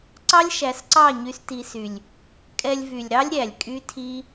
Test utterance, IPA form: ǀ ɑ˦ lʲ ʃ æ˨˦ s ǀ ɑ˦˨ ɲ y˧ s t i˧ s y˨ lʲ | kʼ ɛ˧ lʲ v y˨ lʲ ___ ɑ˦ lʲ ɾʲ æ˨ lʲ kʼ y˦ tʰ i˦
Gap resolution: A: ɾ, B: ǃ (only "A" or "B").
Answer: A